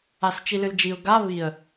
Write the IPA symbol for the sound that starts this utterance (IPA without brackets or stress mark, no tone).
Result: a